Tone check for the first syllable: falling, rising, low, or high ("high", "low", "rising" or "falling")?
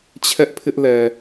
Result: high